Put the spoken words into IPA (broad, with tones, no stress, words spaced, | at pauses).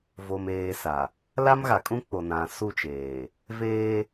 vo˨meː˨ sa˨ | la˦mɣa˨kʼũ˦k͡po˨ nã˨su˦˨t͡ʃeː˨ | veː˦